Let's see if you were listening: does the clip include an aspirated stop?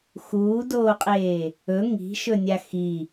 no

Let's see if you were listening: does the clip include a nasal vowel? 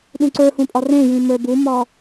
yes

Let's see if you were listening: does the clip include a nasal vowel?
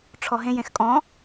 yes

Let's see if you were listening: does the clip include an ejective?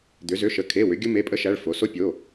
yes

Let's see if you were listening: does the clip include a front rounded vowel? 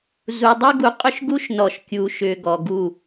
yes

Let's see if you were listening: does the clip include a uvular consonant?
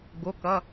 no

